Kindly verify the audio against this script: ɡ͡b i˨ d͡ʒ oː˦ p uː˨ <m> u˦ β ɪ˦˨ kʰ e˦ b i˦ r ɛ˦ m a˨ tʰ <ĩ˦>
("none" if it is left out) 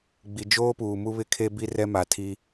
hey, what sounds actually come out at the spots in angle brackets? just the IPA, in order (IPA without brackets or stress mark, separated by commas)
m, i˦